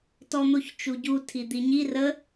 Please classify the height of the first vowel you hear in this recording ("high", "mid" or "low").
mid